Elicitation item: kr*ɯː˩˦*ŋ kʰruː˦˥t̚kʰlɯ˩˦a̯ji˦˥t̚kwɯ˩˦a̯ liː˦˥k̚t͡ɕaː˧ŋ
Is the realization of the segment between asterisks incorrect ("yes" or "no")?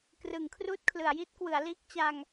yes